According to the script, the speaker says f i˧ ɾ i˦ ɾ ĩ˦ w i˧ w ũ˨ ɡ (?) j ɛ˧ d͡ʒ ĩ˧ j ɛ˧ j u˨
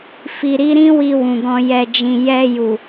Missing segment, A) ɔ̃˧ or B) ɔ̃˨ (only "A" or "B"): A